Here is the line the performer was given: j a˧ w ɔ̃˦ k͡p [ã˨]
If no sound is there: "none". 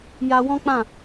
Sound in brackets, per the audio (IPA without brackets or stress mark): ã˦˨